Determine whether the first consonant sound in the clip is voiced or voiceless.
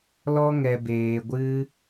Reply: voiced